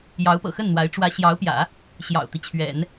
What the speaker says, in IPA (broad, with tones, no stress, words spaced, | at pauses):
jɑ˧˥ʊ̯pɤ̰˨˩xə˥˩nn̪wa˧˥ɪ̯ ʈ͡ʂwä˧˥ɕjɑ˧˥ʊ̯pjä̰˨˩˦ | ɕjɑ̰˨˩ʊ̯t̪i˦t͡ɕʰɥɛ̰˨˩˦n